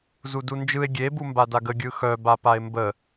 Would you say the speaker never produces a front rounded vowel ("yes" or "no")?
no